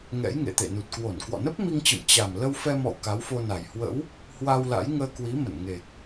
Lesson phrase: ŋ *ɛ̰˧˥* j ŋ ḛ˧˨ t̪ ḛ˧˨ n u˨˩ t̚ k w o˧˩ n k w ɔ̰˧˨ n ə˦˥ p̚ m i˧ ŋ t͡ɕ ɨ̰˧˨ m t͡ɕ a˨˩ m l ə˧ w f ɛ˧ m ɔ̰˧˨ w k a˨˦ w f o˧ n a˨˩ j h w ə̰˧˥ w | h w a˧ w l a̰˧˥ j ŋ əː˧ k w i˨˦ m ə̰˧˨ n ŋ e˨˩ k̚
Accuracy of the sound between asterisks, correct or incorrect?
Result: correct